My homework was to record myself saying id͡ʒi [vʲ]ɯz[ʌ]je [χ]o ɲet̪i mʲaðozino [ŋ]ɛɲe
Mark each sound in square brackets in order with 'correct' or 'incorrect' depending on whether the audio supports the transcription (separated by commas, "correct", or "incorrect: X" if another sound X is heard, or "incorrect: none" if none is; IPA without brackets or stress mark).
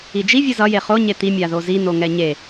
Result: correct, correct, correct, correct